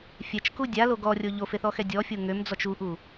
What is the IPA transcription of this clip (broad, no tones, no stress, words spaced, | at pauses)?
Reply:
fʲɛt͡ʃku dʲalo ɡɔrʲo ʎofeθɔxɛ dʲɔfʲo ŋømd͡zɔt͡ʃ uʔu